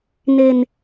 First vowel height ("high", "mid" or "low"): mid